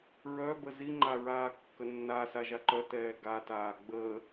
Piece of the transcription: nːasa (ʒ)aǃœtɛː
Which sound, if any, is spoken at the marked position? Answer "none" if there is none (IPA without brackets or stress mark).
ʒ